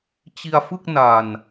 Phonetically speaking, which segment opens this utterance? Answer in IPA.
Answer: t͡ɕ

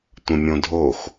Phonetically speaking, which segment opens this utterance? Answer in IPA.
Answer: tʷ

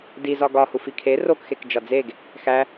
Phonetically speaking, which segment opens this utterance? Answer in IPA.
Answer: d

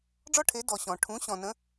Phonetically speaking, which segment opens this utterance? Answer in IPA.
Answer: ɖ͡ʐ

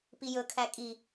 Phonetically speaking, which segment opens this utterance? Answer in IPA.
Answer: p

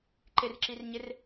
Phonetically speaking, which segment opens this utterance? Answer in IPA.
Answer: ǃ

